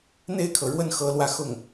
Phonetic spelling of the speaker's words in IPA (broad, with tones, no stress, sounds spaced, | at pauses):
n̪ e˥˩ ɪ̯ kʰ ɤ˩ ɻ w ə˥˩ n x ɤ˧˥ l w ä˥˧ x ʊ˥˩ ŋ